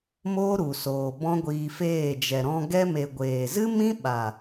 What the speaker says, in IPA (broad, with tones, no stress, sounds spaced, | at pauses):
m oː˦ ɾ u˨ s oː˨ b ɔ̃˦ ɡʷ iː˧ f eː˦˨ d͡ʒ ɛ˨ ɾ ɔ̃˧ ɡ ɛ˧ m e˨ ɡʷ eː˨ z ɨ˦ m ĩ˦ ɓ a˨